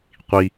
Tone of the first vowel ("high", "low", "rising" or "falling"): low